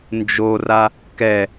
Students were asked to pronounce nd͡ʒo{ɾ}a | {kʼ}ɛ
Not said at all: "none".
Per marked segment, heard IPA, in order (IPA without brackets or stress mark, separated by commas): r, k